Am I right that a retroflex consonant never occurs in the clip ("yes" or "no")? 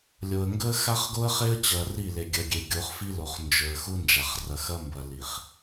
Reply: yes